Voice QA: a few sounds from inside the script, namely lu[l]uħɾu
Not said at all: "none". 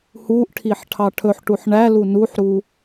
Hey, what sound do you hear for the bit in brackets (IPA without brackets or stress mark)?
n